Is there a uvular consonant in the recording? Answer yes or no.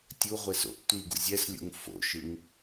yes